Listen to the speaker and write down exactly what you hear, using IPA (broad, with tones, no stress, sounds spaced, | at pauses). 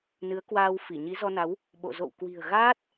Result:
n ɨ˨˦ ə̯ k w aː˧ w f i˧˩ ɲ i˨˦ z ɔ˧ n a˨˦ w | ɓ o̰˧˨ z o̰˧˨ w k w i̤˨˩ ə̯ ɣ aː˦˥ t̚